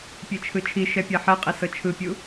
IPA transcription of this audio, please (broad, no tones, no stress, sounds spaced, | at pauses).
pʲ e t͡ʃʰ ɯ t͡ʃʰ i ʃ ɛ pʲ a ħ ɛ qʼ i s ɤ t͡ʃʰ ɯ pʲ u